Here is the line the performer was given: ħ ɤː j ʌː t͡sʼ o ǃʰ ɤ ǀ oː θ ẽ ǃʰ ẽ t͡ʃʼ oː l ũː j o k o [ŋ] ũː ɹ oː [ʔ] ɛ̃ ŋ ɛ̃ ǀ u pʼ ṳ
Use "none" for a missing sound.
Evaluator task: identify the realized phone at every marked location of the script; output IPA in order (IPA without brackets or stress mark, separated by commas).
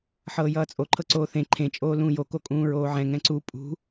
kʼ, ʕ